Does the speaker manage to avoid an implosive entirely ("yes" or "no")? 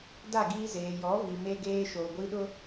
no